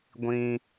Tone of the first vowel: high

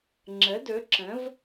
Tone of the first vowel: rising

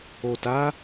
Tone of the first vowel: low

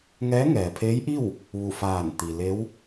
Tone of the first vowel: rising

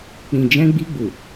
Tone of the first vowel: low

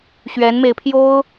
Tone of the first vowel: rising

